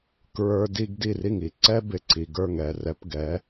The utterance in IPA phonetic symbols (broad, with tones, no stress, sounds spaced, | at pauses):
k ɹ ə˞˦ d i˦ ɡ d i˧˩ r i˧˩ ŋ i˩ ǀ ɛ˦ b ɪ˩ ǀ i˩ ɡ ə˞˧˩ ŋ ɛ˧˩ r ɛ˨˦ p ɡ ɛ˨˦